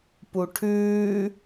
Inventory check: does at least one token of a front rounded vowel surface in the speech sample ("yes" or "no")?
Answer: no